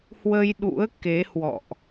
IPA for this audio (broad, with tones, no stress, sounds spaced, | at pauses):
h w ə˧ j ɗ ṵ˧˥ ə̯ k e˨˦ h w ɔ̰˧˨ ʔ